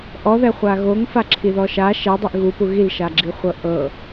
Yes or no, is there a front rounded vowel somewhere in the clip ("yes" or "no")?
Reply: no